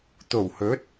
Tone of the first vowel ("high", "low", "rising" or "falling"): low